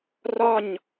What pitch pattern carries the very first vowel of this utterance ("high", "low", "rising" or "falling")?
falling